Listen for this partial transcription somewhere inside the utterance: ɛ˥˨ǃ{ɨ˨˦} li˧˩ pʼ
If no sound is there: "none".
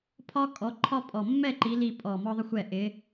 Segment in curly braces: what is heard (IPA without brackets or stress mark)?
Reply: i˨˦